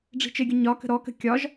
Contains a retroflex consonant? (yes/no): yes